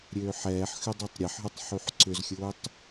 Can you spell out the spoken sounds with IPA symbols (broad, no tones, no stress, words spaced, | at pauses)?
ɾʲøːħɛːħxʏ dˤutˤɾʲɛħɦœtˤ ħyħǀʏzxʲʊːtˤ